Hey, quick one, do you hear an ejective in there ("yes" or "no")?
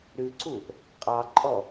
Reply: yes